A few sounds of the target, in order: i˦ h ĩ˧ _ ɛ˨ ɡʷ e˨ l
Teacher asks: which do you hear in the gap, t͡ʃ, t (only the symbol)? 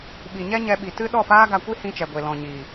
t͡ʃ